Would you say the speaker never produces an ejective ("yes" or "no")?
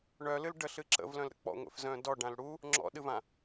yes